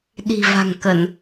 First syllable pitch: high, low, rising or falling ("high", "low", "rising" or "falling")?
low